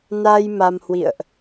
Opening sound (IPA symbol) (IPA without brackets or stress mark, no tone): n